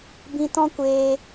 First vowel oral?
no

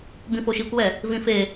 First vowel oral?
no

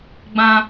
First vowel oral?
no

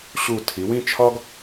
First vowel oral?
yes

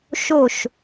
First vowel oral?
yes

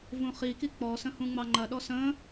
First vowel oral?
no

